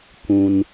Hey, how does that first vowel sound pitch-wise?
low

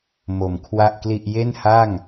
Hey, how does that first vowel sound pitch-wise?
low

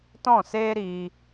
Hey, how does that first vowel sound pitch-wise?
falling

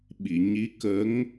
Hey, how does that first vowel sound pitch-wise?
low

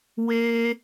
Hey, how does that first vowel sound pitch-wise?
high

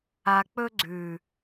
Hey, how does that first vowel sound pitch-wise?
low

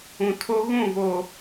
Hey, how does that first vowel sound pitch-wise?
low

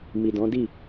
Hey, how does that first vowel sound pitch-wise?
low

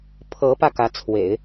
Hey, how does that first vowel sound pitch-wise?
rising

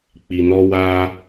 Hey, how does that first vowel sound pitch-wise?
low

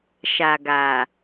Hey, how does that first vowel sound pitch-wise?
low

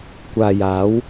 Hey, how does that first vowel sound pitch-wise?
low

